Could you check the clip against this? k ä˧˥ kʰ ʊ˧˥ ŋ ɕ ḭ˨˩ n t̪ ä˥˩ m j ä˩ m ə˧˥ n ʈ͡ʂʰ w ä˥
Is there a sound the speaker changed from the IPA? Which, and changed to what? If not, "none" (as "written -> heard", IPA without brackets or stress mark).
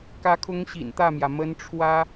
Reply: none